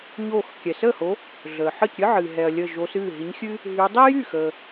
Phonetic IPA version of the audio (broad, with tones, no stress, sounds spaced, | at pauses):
ɲ oː˧˩ x kʲ ɛ˩ s əː˥˩ h o˨˦ | ɮ əː˩ ħ əː˥˩ c ɾʲ ɨ˥ ʕ ɨː˩ ɦ ɛ˩ ɐ̯ lʲ əː˧˩ ʒ oː˨˦ s ɨː˥˩ ɦ i˨˦ ɲ xʲ ɨ˥ | ɦ y˨˦ dˤ i˥ j y˥˩ x əː˩